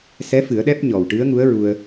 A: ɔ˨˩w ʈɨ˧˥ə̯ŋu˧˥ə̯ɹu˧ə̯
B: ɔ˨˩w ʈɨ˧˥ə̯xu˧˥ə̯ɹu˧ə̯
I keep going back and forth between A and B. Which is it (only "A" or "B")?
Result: A